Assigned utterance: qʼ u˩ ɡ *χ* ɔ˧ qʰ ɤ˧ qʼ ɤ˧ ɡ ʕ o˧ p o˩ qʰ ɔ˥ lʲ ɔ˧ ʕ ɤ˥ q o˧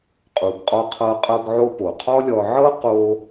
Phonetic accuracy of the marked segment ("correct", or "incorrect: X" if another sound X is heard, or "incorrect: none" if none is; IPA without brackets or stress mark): incorrect: qʼ